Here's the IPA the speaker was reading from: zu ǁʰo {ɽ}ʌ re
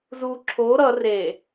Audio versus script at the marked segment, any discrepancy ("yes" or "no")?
yes